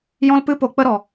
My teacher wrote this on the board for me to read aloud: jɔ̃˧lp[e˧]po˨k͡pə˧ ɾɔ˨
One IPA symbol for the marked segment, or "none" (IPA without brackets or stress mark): ɨ˧